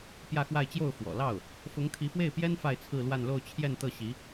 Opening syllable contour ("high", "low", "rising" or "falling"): falling